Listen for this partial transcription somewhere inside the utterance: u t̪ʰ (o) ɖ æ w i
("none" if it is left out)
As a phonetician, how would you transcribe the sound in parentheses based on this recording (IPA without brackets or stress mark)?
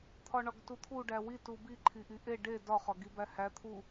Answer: u